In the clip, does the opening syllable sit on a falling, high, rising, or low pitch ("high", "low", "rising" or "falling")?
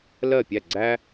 falling